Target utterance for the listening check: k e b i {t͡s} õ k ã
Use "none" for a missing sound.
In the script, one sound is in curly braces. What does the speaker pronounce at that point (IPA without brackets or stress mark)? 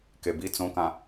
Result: t͡s